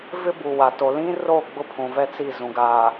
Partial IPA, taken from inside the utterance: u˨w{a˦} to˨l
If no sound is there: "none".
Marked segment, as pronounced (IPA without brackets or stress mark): a˨